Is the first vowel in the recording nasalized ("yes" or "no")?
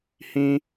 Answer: yes